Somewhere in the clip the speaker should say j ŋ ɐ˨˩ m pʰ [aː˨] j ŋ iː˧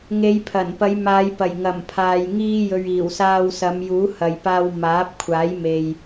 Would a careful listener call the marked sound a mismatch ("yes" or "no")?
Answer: no